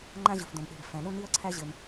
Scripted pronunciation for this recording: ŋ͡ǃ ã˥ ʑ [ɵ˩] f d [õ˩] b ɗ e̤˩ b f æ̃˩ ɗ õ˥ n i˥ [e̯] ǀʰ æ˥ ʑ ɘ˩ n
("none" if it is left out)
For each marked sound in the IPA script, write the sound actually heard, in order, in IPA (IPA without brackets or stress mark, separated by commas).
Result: ɵ˩, õ˩, ɐ̯